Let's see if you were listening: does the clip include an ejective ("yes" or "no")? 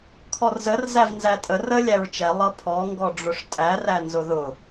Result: yes